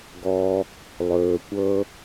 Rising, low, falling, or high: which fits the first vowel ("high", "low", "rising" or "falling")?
low